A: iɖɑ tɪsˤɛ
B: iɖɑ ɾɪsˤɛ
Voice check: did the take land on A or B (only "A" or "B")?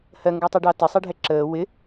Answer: A